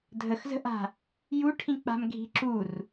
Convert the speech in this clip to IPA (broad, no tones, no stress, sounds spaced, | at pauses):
dʱ ə x z ə̤ ʔ a̤ | j u ʈʰ ĩ k͡p a̤ m ɡʱ i̤ ǁ u r